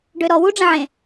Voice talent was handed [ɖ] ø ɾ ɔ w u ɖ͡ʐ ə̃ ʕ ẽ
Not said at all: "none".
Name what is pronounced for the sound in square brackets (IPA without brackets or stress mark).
ɖ